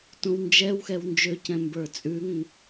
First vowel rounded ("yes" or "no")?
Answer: yes